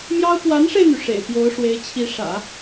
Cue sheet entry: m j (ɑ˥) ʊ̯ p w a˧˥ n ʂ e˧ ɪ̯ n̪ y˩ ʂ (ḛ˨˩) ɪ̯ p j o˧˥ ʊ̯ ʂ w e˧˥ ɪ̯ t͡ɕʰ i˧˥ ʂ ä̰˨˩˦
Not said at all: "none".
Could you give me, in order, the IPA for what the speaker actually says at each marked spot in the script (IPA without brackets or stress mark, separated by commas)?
ɑ˥, ḛ˨˩